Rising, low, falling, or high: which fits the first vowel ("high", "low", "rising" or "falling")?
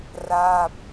falling